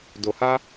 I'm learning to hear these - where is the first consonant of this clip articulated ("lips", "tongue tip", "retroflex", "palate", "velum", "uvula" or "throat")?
tongue tip